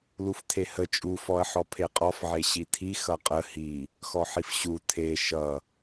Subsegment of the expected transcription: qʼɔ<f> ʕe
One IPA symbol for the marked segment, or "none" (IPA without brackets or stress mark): f